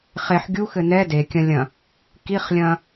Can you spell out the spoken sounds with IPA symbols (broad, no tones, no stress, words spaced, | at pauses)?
χeħ ɡʲuxɘ nɛ dekʲɐ̃lʲɐ̃ | kiχlʲɐ̃